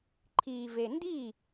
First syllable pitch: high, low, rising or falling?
low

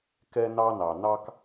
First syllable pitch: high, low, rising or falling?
high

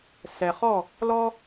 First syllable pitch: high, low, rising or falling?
low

